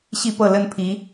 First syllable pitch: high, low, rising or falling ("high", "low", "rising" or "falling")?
falling